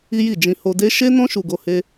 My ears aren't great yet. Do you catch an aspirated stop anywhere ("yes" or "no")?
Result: no